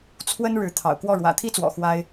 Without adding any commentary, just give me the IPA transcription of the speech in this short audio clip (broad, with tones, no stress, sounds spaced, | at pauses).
t͡sʰ w ə˥ n ɻ ɻ̩˧˥ t̪ʰ ɑ̰˨˩ ʊ̯ k w ɔ˥˩ ɻ w ä̰˨˩ t̪ʰ i˥ t͡s w ɔ̰˨˩ x w a˥ ɪ̯